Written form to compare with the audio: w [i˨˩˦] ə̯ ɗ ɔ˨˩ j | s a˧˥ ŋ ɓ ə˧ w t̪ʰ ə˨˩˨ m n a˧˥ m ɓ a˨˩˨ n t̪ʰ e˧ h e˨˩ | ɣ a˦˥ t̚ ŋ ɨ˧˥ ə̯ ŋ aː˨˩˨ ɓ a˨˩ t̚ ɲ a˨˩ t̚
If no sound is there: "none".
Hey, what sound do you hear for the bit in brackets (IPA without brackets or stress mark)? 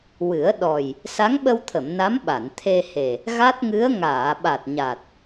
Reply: ɨ˨˩˦